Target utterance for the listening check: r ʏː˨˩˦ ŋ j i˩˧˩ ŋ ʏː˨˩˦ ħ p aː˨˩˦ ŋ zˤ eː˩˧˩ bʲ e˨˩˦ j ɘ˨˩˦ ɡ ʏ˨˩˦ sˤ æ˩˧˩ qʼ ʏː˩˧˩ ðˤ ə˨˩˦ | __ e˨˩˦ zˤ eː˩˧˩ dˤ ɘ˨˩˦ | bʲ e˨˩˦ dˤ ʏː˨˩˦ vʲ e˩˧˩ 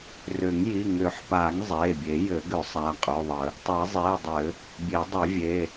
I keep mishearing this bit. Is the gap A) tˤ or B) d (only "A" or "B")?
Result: A